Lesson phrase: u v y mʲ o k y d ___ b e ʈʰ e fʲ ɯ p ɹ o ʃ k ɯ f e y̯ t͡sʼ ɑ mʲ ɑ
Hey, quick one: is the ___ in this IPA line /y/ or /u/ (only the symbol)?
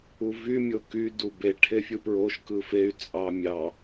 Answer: u